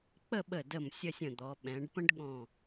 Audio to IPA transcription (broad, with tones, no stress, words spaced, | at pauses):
k͡pə˥˧ɓə˧˩ də˧˩m sʲə˥˧sʲə̃˧˩d̪ɔ˩˧ ɓɛ̃˩˧ɖpə̃˥ɖ ɠɔ̃˧˩